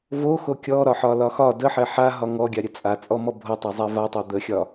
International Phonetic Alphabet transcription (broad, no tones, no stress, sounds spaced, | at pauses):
v o x o kʲ ɔ ɾ ɒ ħ ɒ l ɒ x ɒ d ə ħ ɛ ħ a ɦ ɒ ŋ ɔ ɡʲ a ɾʲ ə t͡sʼ a t͡sʼ ɔ m ɔ bʱ o tˤ a zˤ ɛ v a tˤ a d̪ ə xʲ ɒ